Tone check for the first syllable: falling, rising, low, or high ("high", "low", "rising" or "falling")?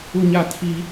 high